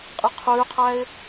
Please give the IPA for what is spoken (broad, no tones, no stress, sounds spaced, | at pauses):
qʼ i qʰ ʉː qʰ æ ɪ̯